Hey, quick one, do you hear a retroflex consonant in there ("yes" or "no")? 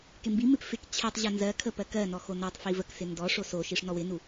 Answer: yes